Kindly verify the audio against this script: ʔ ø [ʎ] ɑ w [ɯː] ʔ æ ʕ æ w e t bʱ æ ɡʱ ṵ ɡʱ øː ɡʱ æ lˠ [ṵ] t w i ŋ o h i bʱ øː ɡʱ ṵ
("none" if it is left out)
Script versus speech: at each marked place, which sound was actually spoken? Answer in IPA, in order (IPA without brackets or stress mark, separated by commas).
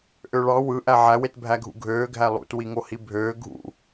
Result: ɭ, ɯ, ṵ